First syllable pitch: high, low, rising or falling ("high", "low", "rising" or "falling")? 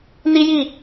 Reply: high